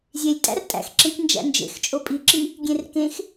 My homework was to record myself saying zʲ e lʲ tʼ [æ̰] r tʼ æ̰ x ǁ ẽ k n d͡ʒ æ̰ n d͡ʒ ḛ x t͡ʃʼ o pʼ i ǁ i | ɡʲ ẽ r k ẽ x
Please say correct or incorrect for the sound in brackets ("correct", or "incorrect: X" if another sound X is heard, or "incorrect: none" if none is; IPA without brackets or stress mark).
correct